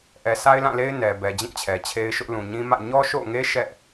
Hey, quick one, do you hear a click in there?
no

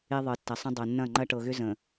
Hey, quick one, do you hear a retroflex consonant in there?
yes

